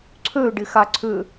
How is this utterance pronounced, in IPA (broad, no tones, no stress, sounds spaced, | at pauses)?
ǀʰ ø ɖ ɪ x a ǀʰ ʏ